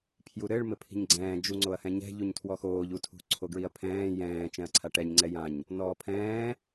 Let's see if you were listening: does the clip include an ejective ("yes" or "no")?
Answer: no